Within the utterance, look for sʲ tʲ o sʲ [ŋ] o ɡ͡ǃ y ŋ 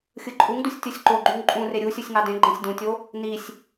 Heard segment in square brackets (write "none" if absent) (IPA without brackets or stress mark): ǃ